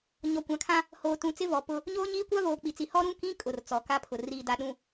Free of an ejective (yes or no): no